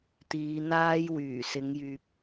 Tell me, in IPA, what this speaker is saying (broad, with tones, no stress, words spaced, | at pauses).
t̪iː˨˧n̪aː˥j wyː˨˩sɪ˨˧ŋjyː˨p̚